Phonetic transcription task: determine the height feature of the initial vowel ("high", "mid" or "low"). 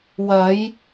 low